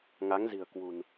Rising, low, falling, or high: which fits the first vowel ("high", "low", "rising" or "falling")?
rising